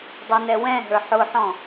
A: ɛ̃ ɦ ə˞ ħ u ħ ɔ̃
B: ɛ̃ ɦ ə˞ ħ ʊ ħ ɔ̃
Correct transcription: B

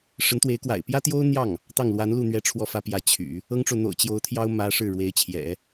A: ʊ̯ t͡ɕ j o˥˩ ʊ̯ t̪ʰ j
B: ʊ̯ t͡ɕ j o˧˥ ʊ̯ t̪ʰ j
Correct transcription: B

